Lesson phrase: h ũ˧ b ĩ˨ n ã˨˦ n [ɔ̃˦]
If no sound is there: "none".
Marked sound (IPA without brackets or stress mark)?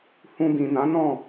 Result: ɔ̃˦˨